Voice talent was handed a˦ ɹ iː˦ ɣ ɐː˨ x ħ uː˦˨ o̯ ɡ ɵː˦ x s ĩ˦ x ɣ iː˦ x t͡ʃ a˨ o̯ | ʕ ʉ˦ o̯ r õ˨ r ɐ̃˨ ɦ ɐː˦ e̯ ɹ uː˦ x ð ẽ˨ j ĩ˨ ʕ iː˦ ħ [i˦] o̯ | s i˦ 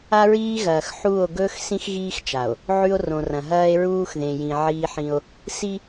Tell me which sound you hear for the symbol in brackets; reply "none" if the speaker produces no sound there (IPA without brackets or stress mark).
ĩ˦